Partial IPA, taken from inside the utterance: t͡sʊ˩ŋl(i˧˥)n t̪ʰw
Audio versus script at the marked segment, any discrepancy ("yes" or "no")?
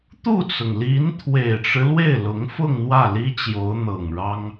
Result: no